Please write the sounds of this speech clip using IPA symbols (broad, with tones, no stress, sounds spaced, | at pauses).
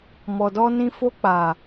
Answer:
m ɔ˨ d ɔ˧ n ĩ˧ f o˧ k͡p a˨